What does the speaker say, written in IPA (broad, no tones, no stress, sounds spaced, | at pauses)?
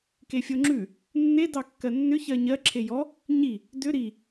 k e fʲ o ŋ͡ǁ ʉ | nː e d ɑ kː ɜ nː ʏ ç ɜ ɲ ɜ ǁʰ e j ɔ | ɲ i | d ʏ ɾ i